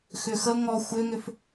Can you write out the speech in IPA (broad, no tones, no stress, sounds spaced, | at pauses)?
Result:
x ʏ x ə ŋ ɔ xʷ ʏ ŋ ʏ f